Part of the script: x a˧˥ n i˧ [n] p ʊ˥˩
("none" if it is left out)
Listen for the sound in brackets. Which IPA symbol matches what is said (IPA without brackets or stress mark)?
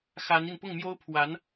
n